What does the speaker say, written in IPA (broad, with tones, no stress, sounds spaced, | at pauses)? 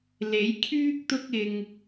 l e˨˥ j kʰ yː˥ k̚ t̪ ʊ˥ k̚ ɪ˧ ŋ